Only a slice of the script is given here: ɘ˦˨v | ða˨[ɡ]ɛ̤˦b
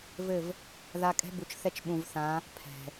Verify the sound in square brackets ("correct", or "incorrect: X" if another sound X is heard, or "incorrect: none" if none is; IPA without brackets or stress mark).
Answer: incorrect: kʼ